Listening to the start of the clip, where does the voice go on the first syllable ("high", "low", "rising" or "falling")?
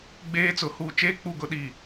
high